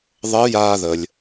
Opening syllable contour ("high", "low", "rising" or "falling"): rising